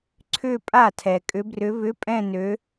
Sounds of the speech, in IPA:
ǀʰ ʏ˥˧ pʼ a˥˩ tʰ ɛ˨ kʼ ʏ˧˥ b r ʏ˧˥ β ʏ˧˥˧ pʼ ɛ̃˥˧ n ø˧˥

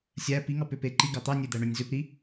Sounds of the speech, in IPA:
sʲ æ p i ŋ ɑ p ø p e ǃ i ɡ ɑ t̪ ɑ nʲ e d̪ æ ɳ ø nʲ z ø p ɾ i

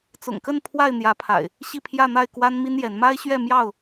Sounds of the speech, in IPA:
t͡s ʊ̰˨˩ ŋ k ə˥˨ n pʰ w a˥˨ ɪ̯ n̪ j ä˨˦ pʰ a̰˨˩ ɪ̯ | ɕ i˥˨ pʰ j ä˥˨ n̪ a˥˨ ɪ̯ k w a˦ n m i˦ n j ɛ˨˦ n m a˦ ɪ̯ ɕ ɥ ɛ˥˨ m j ɑ˥˨ ʊ̯

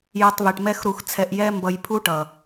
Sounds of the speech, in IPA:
j ʌ˧ tˤ β i˨ ʈ m ɛ˦ x ɾ u˧ x t͡sʰ ɛ˧ ʔ j ɛ˦ m b ʌ˧ j pʰ u˦ ʈ ʌ˨

